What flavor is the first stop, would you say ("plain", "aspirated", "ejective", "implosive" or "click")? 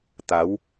plain